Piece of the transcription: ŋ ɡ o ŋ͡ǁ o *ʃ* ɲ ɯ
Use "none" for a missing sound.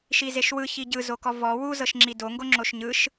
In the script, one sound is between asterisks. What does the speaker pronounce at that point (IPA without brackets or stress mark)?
ʃ